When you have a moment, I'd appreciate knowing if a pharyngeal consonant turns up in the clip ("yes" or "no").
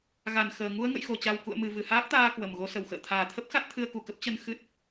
no